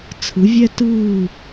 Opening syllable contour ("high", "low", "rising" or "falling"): rising